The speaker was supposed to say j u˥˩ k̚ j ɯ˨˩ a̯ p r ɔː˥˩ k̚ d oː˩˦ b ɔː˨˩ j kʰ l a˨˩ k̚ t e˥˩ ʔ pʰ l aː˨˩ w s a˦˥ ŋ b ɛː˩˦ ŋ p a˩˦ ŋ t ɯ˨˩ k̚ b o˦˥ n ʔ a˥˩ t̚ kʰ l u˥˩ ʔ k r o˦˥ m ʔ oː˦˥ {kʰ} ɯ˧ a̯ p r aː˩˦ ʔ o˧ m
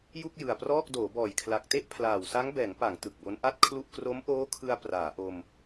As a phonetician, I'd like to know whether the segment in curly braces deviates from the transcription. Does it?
no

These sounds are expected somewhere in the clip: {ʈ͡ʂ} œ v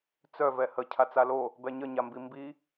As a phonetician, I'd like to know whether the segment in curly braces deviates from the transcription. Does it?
yes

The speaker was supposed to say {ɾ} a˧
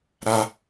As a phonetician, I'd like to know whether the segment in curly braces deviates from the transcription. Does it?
no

